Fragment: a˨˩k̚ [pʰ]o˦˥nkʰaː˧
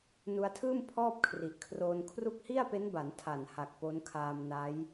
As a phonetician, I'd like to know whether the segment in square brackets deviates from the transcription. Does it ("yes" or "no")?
yes